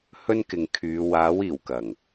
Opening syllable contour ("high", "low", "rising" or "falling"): high